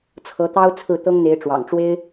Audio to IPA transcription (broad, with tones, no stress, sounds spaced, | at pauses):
t͡sʰ ɤ˧˥ t̪ ɑ˥ ʊ̯ t͡sʰ ɹ̩˥˩ t̪ ɤ˥ ŋ n̪ e˧˥ ɪ̯ ʈ͡ʂ w ɑ̰˨˩ ŋ ʈ͡ʂ w e˥ ɪ̯